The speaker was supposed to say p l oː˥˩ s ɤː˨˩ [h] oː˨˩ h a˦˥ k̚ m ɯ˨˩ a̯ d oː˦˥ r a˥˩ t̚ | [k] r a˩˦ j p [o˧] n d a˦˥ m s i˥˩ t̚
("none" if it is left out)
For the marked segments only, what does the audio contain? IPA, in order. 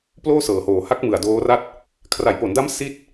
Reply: h, kʰ, o˩˦

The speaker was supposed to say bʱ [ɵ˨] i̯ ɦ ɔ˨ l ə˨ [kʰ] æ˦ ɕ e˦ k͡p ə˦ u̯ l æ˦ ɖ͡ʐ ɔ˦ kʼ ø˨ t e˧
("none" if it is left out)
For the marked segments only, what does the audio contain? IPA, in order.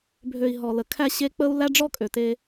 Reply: ø˨, kʰ

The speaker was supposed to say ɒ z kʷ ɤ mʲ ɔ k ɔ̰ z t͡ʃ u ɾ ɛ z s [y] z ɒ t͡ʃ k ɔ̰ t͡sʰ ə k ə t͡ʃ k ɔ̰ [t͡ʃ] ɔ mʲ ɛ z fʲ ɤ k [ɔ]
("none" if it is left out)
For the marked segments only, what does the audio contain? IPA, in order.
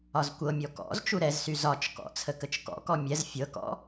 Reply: y, k, ɔ̰

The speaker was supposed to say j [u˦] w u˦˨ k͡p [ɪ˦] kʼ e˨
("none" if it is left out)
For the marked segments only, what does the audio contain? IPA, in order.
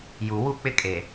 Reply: u˨, ɪ˦

